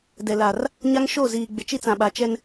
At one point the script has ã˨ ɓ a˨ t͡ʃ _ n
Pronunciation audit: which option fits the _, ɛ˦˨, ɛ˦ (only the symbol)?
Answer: ɛ˦